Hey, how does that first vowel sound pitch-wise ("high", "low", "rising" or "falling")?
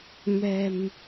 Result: low